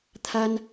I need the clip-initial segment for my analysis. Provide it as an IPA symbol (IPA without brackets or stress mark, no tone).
t̪ʰ